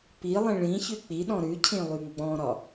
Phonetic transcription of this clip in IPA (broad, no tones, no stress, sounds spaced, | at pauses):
p i lˠ ĩ ɭ ĩ ç ʉ k͡p i ɗ ɔ̃ ɾ ʉ cʰ ĩ lˠ y ŋ ɡ͡b ɔ̃ ɾ ɒ